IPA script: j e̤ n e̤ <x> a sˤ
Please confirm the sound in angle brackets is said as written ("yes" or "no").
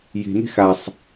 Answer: yes